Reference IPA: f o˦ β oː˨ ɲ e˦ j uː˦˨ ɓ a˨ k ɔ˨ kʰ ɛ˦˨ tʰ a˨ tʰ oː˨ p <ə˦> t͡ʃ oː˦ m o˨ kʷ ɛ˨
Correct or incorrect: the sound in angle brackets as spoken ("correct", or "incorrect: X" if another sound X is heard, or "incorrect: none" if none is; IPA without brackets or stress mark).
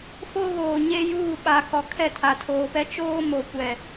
incorrect: ɛ˦